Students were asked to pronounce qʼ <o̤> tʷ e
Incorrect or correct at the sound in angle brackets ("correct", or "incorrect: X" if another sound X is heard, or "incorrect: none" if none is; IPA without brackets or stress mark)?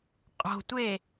correct